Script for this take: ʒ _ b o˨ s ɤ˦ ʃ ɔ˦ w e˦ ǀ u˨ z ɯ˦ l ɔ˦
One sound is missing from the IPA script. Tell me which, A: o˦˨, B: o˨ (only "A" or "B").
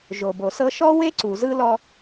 B